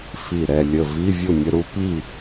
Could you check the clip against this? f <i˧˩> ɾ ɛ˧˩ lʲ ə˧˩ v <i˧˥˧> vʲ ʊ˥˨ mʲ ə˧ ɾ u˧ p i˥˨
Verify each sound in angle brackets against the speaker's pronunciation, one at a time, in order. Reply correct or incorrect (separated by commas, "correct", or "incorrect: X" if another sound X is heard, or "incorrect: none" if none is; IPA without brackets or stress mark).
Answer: correct, correct